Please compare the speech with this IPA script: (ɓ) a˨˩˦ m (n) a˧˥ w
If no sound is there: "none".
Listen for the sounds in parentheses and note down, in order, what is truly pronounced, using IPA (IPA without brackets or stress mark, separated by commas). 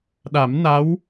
ɗ, n